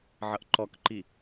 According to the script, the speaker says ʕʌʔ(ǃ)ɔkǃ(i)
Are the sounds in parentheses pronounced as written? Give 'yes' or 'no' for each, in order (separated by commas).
yes, yes